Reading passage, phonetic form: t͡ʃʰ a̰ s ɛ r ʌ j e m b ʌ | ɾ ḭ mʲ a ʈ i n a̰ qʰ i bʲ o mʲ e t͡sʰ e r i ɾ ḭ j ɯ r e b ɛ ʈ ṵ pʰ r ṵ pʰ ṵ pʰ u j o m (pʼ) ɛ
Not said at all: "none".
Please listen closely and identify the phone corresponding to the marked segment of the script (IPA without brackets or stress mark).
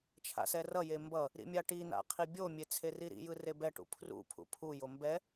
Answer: b